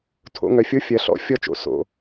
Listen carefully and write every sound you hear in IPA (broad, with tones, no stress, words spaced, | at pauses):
tʰo̰˧ ŋœ˨fʲo˦ fʲɜ˨ɬɔ̰˧ fʲɔ˧t͡ʃo̰˨ so̰˨